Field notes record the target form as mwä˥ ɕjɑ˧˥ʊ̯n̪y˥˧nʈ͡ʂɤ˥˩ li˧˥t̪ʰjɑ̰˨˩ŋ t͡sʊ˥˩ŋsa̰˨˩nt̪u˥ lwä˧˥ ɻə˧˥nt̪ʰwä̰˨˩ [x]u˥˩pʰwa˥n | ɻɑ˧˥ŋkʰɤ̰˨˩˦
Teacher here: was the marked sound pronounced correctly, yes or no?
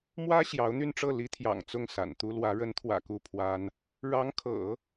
no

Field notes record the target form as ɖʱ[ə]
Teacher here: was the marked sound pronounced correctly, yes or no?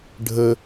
yes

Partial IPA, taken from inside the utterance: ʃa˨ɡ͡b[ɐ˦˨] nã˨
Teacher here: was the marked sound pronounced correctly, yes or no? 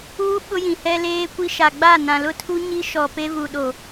no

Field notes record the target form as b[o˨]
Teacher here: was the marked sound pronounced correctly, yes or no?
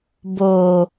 yes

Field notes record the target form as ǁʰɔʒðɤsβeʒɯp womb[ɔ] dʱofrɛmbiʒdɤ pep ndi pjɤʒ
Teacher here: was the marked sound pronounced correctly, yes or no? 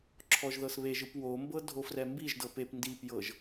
no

